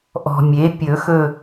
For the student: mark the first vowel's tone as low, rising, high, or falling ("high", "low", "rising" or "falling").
low